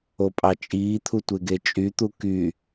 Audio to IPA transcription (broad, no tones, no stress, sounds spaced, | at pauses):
o pʼ ɑ t͡ʃʼ iː t̪ʰ u tʷ e ɡ e t͡ʃʼ y t̪ u k y